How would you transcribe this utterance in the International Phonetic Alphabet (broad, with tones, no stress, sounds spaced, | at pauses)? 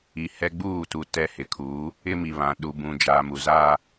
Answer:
i˨ h ɛ˦ ɡ͡b uː˦˨ t u˨ t ɛ˦ h ɪ˨˦ kʰ uː˨˦ | ɪ˦ m i˨ β ã˨ ɗ u˨ b ũ˨ d͡ʒ aː˨ m u˨ z aː˦